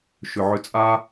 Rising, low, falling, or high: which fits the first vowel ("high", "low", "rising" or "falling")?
low